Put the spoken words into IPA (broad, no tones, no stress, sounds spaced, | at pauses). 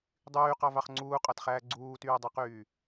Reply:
dˤ yː q ɑ v ɑ χ ŋ͡ǀ uː qʼ ɑ t χ æː ɡ͡ǀ uː t yː dˤ e q yː